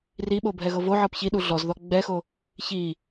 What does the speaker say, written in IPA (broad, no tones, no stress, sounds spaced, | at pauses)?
r i ɓ o bʱ ɛ ɣ ɤ v o ʕ ɤ p ç i ɗ u ɮ ɔ z ð ɔ ɡ͡b ɛ x o | ç i